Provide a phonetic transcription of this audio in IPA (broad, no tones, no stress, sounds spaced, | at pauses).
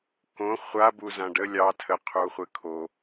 k õ χʷ a b u z ã ɖ ə lʲ ɑ tʰ ə qʰ u χʷ ɘ kʰ o